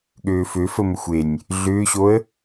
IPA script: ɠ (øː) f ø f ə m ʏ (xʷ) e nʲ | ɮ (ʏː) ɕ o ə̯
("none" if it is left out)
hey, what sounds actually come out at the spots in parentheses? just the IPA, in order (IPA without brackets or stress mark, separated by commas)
øː, xʷ, ʏː